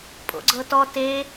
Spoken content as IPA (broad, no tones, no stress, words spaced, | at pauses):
pʼo̰ɡ͡ǀɤtɔ te